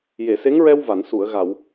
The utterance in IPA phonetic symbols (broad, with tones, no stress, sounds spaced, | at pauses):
j e˨˩˨ s e˧˥ ŋ ɹ ɛ˧ w v a˨˩˨ n s u˨˩˨ ə̯ ɣ a˨˩˨ w